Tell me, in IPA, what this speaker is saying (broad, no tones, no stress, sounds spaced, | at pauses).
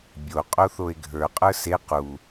bʲ o qʼ o θ o e̯ ɡʱ ə˞ qʼ ə˞ s e q u